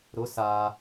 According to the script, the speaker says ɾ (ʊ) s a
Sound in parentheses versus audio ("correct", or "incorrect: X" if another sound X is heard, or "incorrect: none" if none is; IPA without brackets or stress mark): correct